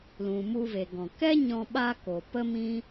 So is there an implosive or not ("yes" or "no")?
yes